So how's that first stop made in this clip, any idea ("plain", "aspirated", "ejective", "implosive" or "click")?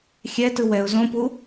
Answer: plain